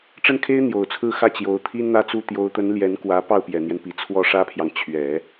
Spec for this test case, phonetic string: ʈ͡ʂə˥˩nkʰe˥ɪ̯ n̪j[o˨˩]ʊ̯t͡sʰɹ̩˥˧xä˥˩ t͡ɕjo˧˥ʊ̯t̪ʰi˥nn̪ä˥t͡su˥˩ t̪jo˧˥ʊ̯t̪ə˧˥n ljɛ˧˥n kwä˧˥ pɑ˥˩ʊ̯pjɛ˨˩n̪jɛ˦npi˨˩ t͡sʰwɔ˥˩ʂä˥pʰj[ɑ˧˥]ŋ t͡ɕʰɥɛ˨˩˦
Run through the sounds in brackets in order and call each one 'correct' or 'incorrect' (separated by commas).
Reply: correct, incorrect